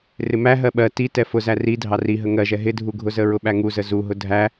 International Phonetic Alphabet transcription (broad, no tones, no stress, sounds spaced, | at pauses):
r ɪ m æ ɦ ɜ ɓ ɜ t i t ɛ f ʊ z æ r i dʱ ɑ r i ɦ ə ŋ ɜ ʒ ɛ ɦ ɪ dʱ u ɡʱ ʊ z ə ɹ ʊ ɓ æ ŋ u z ə z u ɦ ʊ dʱ æ